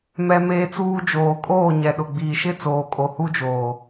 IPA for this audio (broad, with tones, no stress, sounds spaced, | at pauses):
m ɛ˦ m eː˦ t͡s uː˦ d͡ʒ oː˨ kʼ oː˦˨ ɲ ɛ˨ ɗ ʊ˨ ɡ͡b iː˨ ʃ ɪ˦˨ t͡s oː˨ kʼ o˨ h u˦ d͡ʒ oː˨